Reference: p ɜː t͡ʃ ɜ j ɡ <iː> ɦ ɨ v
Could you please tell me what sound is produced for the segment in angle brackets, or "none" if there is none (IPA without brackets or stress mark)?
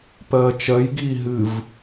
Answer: iː